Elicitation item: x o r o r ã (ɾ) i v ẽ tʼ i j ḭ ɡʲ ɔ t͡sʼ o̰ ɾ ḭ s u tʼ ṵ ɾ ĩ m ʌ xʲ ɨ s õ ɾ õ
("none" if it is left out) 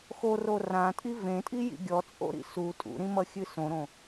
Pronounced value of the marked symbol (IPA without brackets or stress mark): tʼ